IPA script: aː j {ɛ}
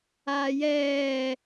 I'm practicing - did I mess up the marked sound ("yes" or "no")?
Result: yes